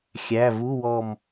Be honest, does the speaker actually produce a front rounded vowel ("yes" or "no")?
no